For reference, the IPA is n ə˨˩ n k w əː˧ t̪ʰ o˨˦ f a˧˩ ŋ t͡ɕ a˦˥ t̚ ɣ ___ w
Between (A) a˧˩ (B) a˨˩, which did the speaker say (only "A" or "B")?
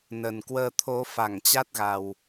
B